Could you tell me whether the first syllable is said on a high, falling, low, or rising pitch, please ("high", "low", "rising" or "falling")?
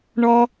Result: high